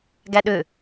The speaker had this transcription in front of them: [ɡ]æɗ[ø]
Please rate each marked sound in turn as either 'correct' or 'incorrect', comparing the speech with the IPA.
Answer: correct, correct

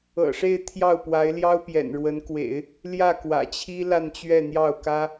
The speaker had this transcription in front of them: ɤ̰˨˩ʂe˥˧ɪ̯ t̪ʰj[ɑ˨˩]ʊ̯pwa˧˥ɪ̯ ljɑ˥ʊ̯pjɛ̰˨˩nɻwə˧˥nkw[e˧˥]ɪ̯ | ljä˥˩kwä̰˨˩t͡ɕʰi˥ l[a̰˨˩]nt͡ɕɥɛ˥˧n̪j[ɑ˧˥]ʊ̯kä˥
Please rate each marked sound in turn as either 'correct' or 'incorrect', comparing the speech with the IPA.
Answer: incorrect, incorrect, incorrect, incorrect

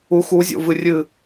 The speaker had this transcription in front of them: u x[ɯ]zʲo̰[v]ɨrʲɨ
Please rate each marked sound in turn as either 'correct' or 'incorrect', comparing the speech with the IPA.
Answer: incorrect, correct

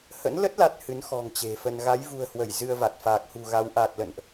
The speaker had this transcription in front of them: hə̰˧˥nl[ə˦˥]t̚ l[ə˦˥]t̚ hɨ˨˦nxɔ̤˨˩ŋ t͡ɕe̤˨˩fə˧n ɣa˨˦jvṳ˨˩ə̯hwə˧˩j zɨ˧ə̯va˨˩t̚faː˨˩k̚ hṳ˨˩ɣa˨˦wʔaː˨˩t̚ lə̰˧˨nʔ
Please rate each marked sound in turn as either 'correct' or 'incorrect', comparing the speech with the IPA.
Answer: correct, incorrect

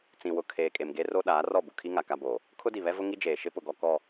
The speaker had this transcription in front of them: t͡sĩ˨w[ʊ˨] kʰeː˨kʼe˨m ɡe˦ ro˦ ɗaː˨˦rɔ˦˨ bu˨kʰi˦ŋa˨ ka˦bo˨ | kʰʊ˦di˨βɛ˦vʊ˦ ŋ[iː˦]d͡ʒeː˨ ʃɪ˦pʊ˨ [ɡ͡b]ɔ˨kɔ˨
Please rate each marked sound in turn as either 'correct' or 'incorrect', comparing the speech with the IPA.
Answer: correct, incorrect, incorrect

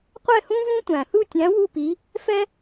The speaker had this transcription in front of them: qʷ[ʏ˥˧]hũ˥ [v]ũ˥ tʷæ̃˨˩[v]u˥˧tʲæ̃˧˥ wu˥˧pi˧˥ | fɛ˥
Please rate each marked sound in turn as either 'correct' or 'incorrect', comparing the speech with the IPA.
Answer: incorrect, correct, incorrect

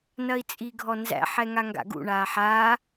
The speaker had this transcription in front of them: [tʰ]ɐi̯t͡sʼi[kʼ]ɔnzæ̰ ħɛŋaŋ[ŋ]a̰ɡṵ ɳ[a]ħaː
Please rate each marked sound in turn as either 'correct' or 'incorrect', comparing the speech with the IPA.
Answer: incorrect, incorrect, incorrect, incorrect

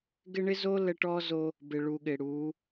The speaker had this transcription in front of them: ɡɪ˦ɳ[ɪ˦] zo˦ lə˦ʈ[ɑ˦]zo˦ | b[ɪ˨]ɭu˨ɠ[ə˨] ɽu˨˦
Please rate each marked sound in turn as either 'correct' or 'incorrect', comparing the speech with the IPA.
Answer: correct, incorrect, correct, incorrect

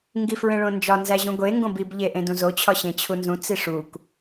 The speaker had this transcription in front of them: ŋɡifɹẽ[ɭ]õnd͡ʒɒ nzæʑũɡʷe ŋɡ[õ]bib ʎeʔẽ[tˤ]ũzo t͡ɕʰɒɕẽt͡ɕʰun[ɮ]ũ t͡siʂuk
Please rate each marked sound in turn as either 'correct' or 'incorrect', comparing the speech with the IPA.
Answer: correct, correct, incorrect, incorrect

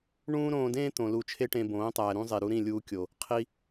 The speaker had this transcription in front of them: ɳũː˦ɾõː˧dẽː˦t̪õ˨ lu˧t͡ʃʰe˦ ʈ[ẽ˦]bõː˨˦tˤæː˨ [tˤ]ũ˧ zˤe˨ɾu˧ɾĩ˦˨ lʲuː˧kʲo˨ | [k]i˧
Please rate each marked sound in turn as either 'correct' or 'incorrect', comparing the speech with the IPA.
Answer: incorrect, incorrect, incorrect

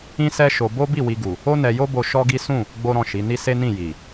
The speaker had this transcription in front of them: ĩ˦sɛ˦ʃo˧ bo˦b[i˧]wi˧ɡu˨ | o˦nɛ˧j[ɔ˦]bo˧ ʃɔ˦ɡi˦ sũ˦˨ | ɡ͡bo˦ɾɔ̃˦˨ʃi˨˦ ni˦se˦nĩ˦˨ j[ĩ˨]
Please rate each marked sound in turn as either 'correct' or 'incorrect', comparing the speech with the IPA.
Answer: incorrect, incorrect, incorrect

